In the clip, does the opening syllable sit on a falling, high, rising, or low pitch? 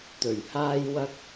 low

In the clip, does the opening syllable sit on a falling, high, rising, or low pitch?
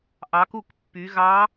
rising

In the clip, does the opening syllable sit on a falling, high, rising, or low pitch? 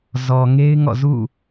low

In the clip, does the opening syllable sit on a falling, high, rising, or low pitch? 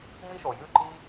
high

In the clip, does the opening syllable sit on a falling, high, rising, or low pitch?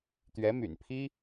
rising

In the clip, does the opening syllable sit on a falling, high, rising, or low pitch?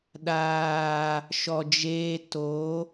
low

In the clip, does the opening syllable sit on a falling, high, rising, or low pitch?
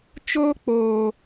high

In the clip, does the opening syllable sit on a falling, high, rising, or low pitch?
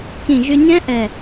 low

